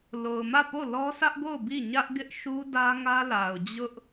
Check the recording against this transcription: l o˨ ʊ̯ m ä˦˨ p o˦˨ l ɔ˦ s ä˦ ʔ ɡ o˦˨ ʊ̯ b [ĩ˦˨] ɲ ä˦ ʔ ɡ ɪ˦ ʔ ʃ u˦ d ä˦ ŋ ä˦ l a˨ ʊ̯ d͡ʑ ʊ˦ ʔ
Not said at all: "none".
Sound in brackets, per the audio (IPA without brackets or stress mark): i˦˨